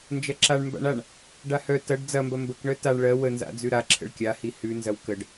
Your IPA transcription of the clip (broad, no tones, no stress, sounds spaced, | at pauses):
n d͡ʒ ɐ ǁ a ɳ m b a̰ ɳ a ɳ | ɖ a h œ t ɐ ɖ d͡z ɐ m b ɐ m b ə k ɳ œ t a ɳ ɭ ɜ w ə n z a̰ d͡z ʉ ɾ a ǁʰ ə̰ ɭ kʲ a h i h ʉ n z ɐ w k ə ɖ